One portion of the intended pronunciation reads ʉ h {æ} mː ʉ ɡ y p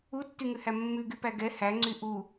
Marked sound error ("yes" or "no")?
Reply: no